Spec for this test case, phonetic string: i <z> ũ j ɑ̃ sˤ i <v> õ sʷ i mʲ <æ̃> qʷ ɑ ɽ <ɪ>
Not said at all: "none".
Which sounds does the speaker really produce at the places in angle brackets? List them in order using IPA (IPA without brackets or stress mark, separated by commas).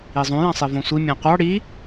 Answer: zˤ, v, æ̃, i